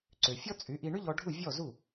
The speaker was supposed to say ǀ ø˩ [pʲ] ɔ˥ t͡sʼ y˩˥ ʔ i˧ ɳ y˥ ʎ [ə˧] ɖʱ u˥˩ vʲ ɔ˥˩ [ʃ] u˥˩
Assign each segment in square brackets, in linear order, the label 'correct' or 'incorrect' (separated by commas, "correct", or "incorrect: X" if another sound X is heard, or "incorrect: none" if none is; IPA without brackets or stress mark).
incorrect: fʲ, incorrect: ɔ˧, incorrect: z